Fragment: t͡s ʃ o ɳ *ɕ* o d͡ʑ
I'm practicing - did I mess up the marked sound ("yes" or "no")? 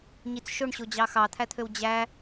no